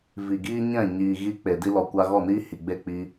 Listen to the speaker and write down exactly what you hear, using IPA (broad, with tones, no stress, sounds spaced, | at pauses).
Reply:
v i˨ ɡ iː˦ ɲ ɛ̃˦˨ ɲ iː˨ ɣ i˧ k͡p e˨ d i˧ l ɔ˨ kʷ a˧ ɣ ɔ˦˨ n iː˦ h i˨ ɡ͡b e˦˨ k͡p i˧